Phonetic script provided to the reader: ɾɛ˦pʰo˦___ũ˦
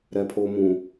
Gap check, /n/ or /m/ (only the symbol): m